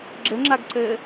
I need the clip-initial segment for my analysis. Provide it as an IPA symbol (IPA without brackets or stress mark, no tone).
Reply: ɡ͡ǁ